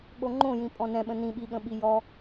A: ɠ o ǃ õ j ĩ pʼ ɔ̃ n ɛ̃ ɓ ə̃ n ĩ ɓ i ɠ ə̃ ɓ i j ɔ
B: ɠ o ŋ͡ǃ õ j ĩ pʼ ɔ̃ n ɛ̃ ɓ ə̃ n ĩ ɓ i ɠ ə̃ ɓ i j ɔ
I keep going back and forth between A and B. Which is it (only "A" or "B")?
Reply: B